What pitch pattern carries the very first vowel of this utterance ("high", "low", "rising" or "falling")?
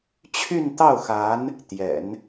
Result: falling